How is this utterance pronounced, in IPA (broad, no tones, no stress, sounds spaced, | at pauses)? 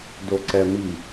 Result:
d o ǀ ɛ m i